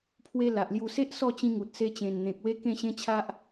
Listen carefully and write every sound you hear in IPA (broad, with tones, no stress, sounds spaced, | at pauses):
pʰ w e˧ l a˨ ʔ l j u˧ s e˦ ʔ s ɔ˥˧ t͡ɕ ĩ˧ ŋ u˨ t̚ s e˧ t͡ɕ ẽ˨˩ n n̪ ẽ˨ k̚ w e˦ k ẽ˥˧ ɕ ẽ˦ t͡ɕʰ a˦ ʔ